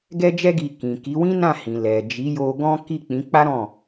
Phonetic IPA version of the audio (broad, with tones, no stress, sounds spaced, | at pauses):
ɡ ɛ˦ d͡ʒ ɛ˦ ɡ i˧ k ĩ˨ k i˨˦ w ĩ˦ n ã˦˨ h ĩ˨ l ɛ˨ d͡ʒ i˨˦ j o˧ ɡ ɔ̃˦ k i˦˨ k͡p ĩ˨˦ k͡p a˦ ɾ ɔ̃˦˨